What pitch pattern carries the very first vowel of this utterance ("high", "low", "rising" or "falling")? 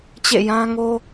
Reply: falling